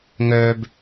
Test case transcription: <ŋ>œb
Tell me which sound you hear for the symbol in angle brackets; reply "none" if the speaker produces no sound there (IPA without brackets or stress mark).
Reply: ŋ